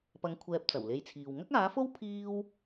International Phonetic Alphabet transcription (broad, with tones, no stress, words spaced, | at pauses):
pɐ˨˧ŋ kʷʰɛː˧p̚t͡sɐ˨˩wle˧jt͡sʰiː˨w ŋɐ˥k̚aː˨˥fo˥w pʰiː˥w